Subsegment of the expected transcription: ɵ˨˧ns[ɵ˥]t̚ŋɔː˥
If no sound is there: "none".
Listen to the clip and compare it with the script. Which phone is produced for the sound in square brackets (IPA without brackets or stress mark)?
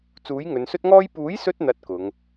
ɵ˥